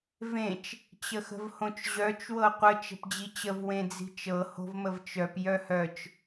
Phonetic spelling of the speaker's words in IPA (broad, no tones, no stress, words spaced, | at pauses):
vẽt͡ʃ | t͡ɕəxə̤vhõt͡ʃʑœt͡ʃ wɤqʷə t͡ʃə̤pd͡ʑit͡ɕəv wẽd͡zi̤t͡ʃɤ ho̤vməvt͡ʃœp jœhœt͡ʃ